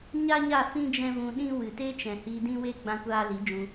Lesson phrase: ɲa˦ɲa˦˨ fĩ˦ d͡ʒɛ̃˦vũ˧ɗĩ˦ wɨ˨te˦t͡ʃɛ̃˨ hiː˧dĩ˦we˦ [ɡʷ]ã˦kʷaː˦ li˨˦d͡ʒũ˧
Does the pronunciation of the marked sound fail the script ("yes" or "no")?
yes